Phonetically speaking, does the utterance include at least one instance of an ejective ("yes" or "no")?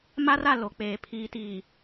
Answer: no